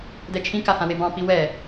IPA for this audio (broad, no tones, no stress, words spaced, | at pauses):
dɛt͡ʃʰĩka hãwebɑ̃pi wɛ